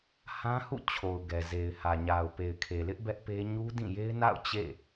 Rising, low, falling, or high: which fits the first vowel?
high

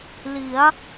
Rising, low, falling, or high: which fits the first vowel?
rising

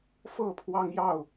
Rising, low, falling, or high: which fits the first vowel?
falling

